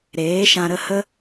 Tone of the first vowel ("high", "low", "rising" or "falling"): rising